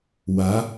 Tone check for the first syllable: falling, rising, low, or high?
rising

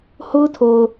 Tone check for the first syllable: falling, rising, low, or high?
high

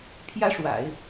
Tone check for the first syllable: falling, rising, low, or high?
high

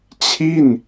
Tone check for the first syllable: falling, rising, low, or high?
falling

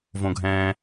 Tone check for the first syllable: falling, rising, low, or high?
low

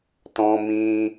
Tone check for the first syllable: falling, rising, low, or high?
high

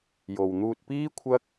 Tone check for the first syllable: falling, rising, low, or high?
low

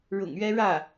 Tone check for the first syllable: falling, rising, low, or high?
low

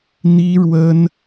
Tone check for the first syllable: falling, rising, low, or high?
high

